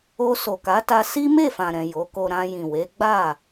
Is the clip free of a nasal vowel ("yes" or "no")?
no